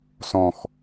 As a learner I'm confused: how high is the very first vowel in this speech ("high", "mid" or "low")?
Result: mid